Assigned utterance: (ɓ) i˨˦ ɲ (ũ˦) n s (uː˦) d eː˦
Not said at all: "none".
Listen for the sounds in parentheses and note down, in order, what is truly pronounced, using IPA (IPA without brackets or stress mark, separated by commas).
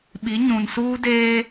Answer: ɓ, ũ˨, uː˦